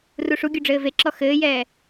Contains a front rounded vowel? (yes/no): no